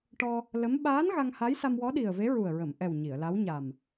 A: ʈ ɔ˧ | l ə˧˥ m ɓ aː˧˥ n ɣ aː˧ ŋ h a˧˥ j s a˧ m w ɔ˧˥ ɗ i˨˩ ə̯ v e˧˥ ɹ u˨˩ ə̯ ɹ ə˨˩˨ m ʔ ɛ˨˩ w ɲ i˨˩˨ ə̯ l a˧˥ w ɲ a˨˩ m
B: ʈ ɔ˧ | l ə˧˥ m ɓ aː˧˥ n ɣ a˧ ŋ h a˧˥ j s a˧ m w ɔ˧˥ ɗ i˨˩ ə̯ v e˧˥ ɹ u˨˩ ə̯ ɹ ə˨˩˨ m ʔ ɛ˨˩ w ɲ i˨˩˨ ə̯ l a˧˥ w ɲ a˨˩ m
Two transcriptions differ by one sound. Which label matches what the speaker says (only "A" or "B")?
B